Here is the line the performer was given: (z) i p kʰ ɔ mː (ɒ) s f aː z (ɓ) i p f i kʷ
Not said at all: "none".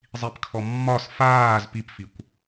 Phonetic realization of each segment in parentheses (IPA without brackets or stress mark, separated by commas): zˤ, ɒ, p